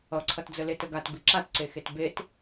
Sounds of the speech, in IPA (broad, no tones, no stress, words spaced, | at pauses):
ʌǀʰʌtd͡zə letəɡat biǁatǀexet bet